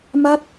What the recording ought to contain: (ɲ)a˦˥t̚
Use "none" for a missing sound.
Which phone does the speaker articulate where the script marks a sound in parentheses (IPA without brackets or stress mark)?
m